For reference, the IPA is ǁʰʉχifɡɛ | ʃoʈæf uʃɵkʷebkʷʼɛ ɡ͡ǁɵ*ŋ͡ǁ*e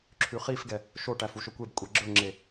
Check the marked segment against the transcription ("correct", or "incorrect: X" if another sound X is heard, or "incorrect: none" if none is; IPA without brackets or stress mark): correct